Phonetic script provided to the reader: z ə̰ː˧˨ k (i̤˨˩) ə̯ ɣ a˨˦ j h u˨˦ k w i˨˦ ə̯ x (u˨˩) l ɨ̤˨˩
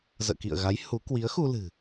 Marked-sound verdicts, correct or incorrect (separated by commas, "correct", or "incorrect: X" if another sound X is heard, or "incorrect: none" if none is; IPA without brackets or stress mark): incorrect: ḭ˧˨, incorrect: u˧